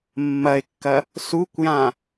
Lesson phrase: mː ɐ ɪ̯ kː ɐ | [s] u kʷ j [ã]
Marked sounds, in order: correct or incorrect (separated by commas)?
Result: correct, correct